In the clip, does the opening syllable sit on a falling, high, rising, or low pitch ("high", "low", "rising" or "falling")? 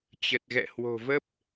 low